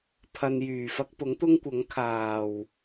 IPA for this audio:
pʰ ɐ˧ n j yː˨˩ f ɐ˥ k̚ p ʊ˨˥ ŋ t̪ ʊ˥ ŋ kʷ ɐ˨˥ ŋ kʰ aː˨˩ w

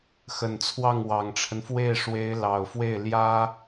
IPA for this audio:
x ə˨˩ n t͡sʰ w ɑ˥˩ ŋ w ɑ˨˩ ŋ ʈ͡ʂʰ ə˦ n f w e˥˩ ɪ̯ ʂ w e˧˥ ɪ̯ l ɑ˨˩ ʊ̯ f w e˥˩ ɪ̯ l j ä˥

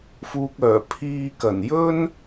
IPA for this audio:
f uː˨ k̚ œː˨˩ pʰ iː˧ k ɐ˨˩ n j ɵ˥ n

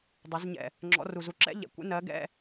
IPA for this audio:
dˤ u˩˧ z ɲ ɛ̰˨˩ | ŋ͡ǁ ɔ̰˨˥ r u˨˩ z u˨˥ ǁ ɛ̰˥ ʎ ɛ̰˨˩ kʷ ɛ̰˨˥ n ɜ˨˥ ɡ ɛ̰˧˥˧

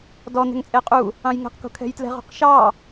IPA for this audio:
d ɔ n̪ ɛ̤ ŋ t͡sʼ e qʼ u | ɑ̃ j ŋ ɛ̤ q k o̤ kʰ ɛ̤ j t l ɛ̤ ʁ o̤ q ʃ ɑ

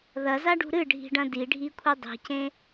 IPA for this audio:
ð ɐ z a ɖ ṳ ɾ ɨ ɖʱ i̤ ɖ ɐ̃ d i ɖʱ i kʷʰ i dˤ i̤ c ẽ

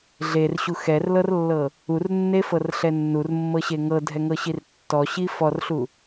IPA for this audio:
ɮ e r ɕ u x ɛ r l ɤ r lː ɤ | u r nː e f ɤ r ɬ ɛ nː u r mː ɤ ɕ e ŋ ɤ dʱ ɛ ŋ ɤ ɕ i r tː ɔ ɕ i f ɔ r ɬ u

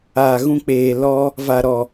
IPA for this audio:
aː˨ ɣ ũ˧ k͡p eː˨ l ɔ˧ | v a˨ ɾ ɔ˨

